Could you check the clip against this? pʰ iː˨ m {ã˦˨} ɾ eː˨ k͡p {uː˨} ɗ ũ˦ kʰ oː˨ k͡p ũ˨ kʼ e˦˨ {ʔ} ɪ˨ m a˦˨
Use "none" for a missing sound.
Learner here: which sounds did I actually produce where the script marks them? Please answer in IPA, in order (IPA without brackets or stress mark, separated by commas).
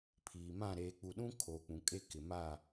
ã˦˨, u˨, k